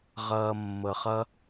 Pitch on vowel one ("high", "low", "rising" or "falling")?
low